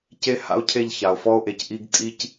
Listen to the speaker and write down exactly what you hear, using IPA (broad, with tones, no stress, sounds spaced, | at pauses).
c e˦ h a̰˦ o̯ cʰ e˦˨ ʎ ç a˨ o̯ f ɔ˦ o̯ ʔ e˨ c ʔ i˦ ɡ tʼ i˦ c